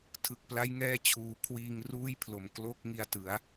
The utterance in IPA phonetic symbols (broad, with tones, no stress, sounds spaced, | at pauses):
tʰ ɯ˨˩ k̚ p l a˦˥ j ŋ ɛː˧ t͡ɕʰ uː˩˦ kʰ w iː˧ ŋ r uː˥˩ j pʰ l o˨˩ m k l o˥˩ k̚ ŋ i˧ a̯ t ɯ˩˦ a̯